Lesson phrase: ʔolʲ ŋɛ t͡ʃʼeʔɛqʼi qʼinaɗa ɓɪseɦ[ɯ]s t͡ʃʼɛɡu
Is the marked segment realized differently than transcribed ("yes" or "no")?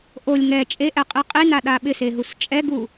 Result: yes